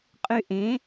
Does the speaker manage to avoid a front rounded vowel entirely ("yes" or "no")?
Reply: no